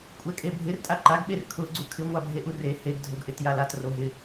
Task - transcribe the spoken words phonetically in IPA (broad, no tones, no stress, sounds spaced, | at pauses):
kʷʼ ɛ kʼ e bʱ ɪ r tʼ a ǃ a ɡ ɓ e r kʰ ʊ ɡ͡ǀ u kʰ ɪ ŋʷ a bʱ e ʔ u r e h e ɡ dʱ o ɡ ʔ ɪ t j a l a t r o ɦ ɪ